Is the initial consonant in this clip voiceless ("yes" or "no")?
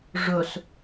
no